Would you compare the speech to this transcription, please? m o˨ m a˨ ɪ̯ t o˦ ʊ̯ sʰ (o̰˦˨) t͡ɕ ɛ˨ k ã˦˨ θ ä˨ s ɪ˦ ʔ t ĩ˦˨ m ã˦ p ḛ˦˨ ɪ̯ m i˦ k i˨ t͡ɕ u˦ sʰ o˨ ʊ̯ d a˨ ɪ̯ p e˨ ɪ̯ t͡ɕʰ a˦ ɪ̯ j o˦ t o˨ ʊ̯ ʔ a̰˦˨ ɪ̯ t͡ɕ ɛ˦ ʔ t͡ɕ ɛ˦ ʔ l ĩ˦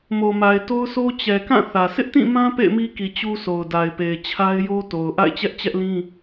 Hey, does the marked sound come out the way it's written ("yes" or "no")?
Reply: no